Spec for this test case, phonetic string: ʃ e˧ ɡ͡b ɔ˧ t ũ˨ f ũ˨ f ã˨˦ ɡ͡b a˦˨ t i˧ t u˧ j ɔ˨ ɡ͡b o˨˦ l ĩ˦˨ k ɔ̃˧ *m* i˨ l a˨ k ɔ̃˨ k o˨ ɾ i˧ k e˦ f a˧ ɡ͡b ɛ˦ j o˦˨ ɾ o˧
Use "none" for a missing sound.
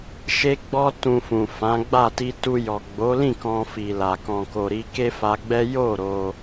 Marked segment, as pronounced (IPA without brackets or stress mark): f